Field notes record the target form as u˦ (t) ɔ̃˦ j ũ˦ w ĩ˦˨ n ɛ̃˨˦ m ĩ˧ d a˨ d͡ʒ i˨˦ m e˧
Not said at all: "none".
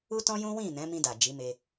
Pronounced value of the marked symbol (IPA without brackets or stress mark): t